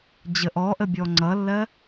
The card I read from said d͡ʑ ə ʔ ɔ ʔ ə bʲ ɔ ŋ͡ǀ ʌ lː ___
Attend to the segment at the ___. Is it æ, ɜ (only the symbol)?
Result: ɜ